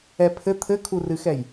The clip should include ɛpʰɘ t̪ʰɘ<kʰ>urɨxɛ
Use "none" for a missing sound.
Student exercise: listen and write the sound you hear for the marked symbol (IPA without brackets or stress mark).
kʰ